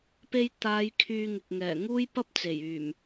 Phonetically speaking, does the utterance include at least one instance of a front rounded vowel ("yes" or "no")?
yes